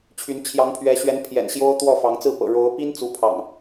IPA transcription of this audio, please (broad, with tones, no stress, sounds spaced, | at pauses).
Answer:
t͡ɕʰ y˨˦ n t͡ɕʰ j ɑ˨˦ ŋ pʰ ɥ ɛ˨˦ ɕ ɥ ɛ˨˦ n pʰ j ɛ̰˨˩ n ɕ j o˦ ʊ̯ t̪ w ɔ˥˨ f ɑ˨˦ ŋ t͡s ɹ̩˥˨ p ɤ̰˨˩ ɻ o˨˦ ʊ̯ p i˦ n t͡s u˨˦ pʰ ɑ̰˨˩ ŋ